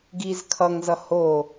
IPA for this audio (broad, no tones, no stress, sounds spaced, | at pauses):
ɡ i z kʰ ʌ ŋ z ʌ h o